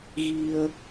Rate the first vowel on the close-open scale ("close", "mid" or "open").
close